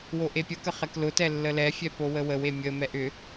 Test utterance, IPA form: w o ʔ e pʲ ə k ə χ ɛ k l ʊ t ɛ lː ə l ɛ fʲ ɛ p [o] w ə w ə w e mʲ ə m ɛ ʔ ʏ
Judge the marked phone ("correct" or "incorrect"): correct